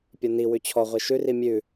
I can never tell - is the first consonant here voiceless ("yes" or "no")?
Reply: yes